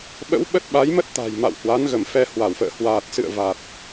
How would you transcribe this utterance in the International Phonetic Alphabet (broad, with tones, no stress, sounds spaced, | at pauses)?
ɓ ə̰˧˥ w ɓ ə˦˥ t̚ ɓ a˨˦ j m ə˦˥ t̚ t̪ a̤˨˩ j m a̰˧˨ w h w a˨˦ n ɣ ə˧˩ m f ɛ˧ h w a˧˩ w f ə̰ː˧˨ h w aː˨˩ t̚ s ɨ̰˧˨ ə̯ v a˨˩ t̚